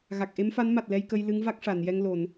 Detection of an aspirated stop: absent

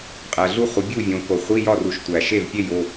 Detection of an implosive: absent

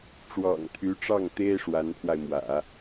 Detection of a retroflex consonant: present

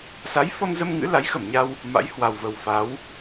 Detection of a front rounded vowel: absent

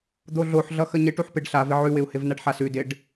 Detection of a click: absent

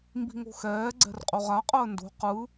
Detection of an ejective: present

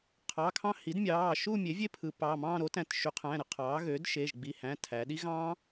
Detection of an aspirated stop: present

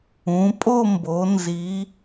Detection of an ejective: present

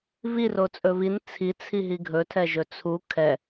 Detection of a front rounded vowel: absent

